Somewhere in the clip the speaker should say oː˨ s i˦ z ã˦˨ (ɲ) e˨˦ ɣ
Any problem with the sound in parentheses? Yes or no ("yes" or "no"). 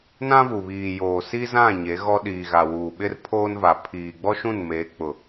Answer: no